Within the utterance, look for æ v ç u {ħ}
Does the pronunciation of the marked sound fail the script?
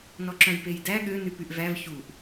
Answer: yes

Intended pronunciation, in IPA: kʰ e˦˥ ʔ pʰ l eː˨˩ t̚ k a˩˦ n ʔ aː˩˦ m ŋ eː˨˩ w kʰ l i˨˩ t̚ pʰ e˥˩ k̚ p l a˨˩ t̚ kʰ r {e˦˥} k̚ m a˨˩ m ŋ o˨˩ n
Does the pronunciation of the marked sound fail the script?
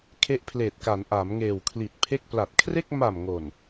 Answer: yes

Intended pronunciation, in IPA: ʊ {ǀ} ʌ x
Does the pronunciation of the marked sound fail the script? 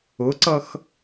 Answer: no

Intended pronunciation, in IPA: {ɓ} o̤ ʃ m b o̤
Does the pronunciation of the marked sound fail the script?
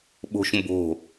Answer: no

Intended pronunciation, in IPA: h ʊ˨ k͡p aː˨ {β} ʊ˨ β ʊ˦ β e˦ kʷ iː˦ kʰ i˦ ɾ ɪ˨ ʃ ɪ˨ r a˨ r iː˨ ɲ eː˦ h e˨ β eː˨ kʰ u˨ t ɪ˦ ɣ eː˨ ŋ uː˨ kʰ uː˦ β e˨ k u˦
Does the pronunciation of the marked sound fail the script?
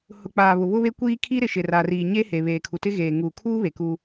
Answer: no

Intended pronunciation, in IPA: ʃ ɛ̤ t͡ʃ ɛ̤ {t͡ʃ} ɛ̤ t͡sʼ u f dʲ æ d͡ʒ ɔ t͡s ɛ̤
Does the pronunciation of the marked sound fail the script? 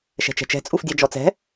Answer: no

